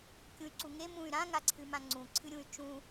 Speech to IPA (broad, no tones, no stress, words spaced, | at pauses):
kʲũy̯ǀuŋe mũy̯ ɾã ŋaǀʰɨmãŋ͡ǀũ ǀʰɨɾʲũy̯t͡ʃũ